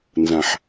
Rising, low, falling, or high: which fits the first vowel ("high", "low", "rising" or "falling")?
low